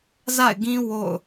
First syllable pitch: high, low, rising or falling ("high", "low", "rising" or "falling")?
falling